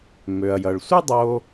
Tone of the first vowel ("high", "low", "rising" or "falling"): low